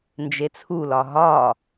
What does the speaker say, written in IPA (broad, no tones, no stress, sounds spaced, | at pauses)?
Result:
n d͡ʒ e t͡sʰ u l ɒ ɦ ɒ